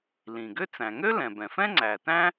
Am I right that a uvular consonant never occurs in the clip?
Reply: yes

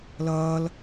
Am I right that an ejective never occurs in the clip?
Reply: yes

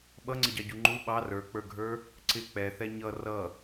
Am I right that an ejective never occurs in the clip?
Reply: yes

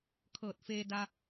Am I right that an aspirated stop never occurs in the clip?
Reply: no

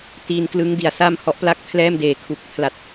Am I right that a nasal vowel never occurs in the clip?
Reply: yes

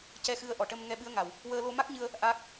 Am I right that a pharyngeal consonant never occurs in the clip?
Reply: yes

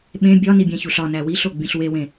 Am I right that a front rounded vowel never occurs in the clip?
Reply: yes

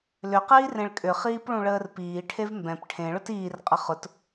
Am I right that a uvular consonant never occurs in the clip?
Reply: no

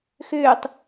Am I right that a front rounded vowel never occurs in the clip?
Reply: no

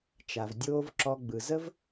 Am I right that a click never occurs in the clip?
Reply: no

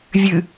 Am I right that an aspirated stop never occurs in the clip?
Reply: yes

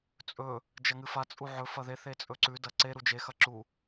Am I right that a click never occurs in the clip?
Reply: no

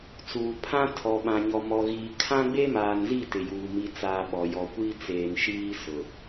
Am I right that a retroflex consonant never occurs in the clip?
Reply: yes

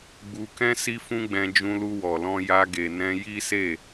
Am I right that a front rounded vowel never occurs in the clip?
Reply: yes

